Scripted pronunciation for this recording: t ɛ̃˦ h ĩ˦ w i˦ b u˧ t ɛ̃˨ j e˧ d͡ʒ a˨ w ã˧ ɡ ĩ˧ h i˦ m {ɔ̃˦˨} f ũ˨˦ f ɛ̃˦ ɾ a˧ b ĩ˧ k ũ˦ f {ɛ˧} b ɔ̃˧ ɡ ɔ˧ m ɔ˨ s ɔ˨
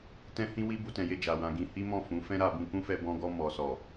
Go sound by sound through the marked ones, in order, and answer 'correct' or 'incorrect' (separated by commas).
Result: correct, correct